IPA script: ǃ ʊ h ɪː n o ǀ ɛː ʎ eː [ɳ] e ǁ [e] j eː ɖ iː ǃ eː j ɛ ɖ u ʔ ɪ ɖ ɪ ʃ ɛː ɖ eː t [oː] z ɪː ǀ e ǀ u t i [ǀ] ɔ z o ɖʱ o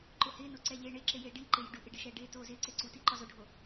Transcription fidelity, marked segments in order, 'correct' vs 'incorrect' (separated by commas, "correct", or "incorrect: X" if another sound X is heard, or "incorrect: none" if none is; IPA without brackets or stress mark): correct, correct, correct, incorrect: ǃ